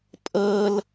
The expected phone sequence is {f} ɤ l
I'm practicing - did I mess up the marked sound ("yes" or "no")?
yes